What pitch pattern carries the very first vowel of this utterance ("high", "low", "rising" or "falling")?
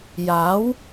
rising